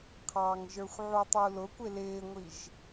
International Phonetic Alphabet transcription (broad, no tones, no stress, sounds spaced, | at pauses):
qʰ ɑ ŋ ʒ ə˞ xʷ ʕ u tˤ u l ʊ kʷ ɪ l ɪː ŋʷ i ʒ